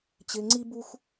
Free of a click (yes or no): no